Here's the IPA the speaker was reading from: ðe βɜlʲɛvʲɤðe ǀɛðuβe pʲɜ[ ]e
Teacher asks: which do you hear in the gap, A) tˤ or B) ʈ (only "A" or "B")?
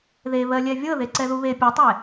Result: A